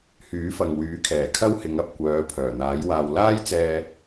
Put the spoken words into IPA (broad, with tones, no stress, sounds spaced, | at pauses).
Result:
h yː˨˥ f ɐ˨ ŋ w yː˨˥ kʰ ɛː˨˩ kʰ ɐ˥ w h ɪ˨˧ ŋ ɐ˨ p̚ kʷ œː˨˧ pʰ œː˨˩ n̪ aː˨˥ j w aː˧ w l aː˥ j t͡s ɛː˧